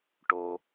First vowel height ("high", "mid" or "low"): mid